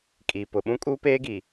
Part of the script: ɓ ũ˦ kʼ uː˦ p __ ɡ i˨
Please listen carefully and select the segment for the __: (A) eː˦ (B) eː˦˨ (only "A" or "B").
A